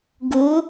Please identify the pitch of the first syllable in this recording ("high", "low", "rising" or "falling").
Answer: rising